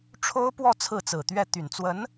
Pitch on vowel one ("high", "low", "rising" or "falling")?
high